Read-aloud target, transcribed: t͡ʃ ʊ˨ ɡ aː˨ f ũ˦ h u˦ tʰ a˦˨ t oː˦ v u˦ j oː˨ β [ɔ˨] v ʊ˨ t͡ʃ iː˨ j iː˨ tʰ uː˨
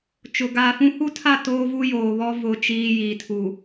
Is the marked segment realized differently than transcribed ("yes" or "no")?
yes